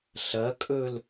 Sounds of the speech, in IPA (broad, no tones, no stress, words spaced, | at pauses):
ɬɐkʼɵl